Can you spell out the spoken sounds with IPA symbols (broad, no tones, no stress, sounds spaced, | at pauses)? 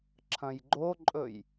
ǁʰ ɐ̃ j ɡ͡ǃ o ǃʼ ɵ j